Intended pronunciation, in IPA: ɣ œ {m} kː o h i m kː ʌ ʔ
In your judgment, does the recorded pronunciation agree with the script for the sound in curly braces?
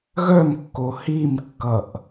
yes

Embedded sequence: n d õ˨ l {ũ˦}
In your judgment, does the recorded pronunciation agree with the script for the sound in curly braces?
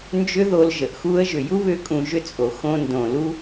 no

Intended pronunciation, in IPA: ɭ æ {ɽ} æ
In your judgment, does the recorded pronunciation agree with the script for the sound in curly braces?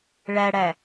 yes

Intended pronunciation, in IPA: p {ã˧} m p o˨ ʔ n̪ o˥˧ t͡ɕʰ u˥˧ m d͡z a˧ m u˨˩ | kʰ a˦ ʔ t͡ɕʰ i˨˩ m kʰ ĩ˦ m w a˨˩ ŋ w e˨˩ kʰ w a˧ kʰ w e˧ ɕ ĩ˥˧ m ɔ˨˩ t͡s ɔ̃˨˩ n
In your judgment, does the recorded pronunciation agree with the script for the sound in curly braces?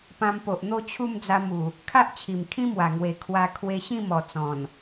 yes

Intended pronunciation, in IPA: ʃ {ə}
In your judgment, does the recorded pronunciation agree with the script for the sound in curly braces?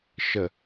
yes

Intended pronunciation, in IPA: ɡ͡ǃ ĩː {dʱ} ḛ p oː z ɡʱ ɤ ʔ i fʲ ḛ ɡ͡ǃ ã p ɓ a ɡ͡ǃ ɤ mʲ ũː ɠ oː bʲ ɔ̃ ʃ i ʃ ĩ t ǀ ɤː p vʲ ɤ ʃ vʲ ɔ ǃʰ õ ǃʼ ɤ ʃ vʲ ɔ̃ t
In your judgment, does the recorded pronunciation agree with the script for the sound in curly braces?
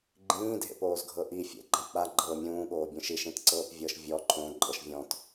yes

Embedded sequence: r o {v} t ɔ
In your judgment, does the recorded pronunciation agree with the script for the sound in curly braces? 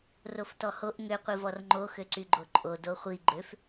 no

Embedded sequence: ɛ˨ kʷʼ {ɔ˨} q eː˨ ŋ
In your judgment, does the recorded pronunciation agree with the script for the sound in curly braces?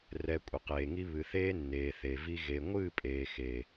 no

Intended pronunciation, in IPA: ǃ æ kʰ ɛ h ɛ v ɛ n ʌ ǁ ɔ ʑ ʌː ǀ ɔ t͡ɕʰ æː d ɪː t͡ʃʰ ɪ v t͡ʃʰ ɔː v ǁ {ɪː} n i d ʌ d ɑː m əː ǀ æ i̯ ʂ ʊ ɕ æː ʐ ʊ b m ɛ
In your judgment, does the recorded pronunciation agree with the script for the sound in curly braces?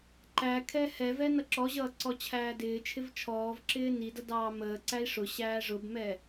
yes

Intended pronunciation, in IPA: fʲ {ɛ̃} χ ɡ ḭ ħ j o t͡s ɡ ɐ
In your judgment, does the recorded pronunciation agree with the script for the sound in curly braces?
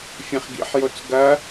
yes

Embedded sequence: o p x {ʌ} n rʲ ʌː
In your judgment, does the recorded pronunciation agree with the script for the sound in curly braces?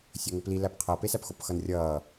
yes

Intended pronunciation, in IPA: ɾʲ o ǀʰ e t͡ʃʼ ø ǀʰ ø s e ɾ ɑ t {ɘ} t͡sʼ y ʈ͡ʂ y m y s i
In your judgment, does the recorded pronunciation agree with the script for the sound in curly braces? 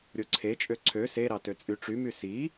no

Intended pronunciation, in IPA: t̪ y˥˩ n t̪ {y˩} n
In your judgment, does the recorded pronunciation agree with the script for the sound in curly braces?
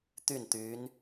no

